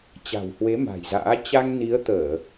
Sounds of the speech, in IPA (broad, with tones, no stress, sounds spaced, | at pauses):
t͡ɕ a̤˨˩ w h w e˨˦ m a̤˨˩ j z a̰ː˧˥ t͡ɕ a˧ ŋ n i˨˦ ə̯ t̪ əː˧˩˨